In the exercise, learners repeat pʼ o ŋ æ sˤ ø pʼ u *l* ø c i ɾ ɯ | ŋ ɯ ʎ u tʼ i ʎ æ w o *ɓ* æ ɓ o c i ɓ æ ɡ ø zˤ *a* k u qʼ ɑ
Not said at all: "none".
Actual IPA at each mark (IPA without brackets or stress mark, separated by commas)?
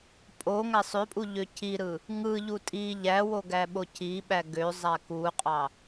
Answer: ʎ, ɡ, æ